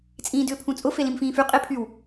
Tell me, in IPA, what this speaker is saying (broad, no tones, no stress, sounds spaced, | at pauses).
t͡sʼ ĩː d ʏː pʰ ũ t͡sʼ ʊ f e l ĩ m f ĩː f y qʼ e pʰ y w